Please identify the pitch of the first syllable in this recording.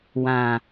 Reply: low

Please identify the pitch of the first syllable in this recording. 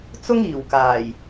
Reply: high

